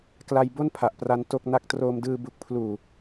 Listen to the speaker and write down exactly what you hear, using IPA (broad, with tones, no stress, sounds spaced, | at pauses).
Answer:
k l a˧ j b o˥˩ n pʰ a˨˩ ʔ p r a˦˥ n t o˥˩ k̚ n a˥˩ k̚ t r oː˧ m d ɯː˧ b u˨˩ k̚ pʰ l uː˨˩